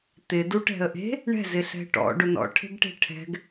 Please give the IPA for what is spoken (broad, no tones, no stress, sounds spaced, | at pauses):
t̪ ɪ d u ʈ ɛ̤ ə̯ ʔ e̤ | ɳ ɛ̤ z ɪ ɬ ɛ̤ ʈ ɔ̰ ɖ ʊ n ɔ̰ ʈʰ e̤ ɡ ʈ e̤ ʈʰ ɛ̤ ɡ